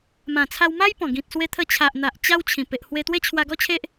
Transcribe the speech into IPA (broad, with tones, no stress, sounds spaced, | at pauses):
m ã˨˩ t͡sʰ a˧ w m a˦ j p ɔ̃˨˩ ɡ ĩ˨ t̚ s w e˧ t̪ʰ ə˧ t͡ɕʰ a˨ ʔ n̪ a˨ ʔ t͡ɕ a˦ w t͡ɕʰ ĩ˨˩ p e˨ ʔ h w e˧ t̪ w e˦ t͡ɕʰ w a˧ ɡ ɔ˦ t͡ɕʰ e˦ ʔ